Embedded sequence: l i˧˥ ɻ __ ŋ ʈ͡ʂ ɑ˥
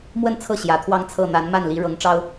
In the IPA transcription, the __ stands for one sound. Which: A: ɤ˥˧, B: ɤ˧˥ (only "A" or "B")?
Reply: B